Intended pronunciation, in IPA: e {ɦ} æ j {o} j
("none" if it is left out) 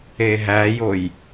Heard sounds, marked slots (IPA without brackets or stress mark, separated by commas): ɦ, o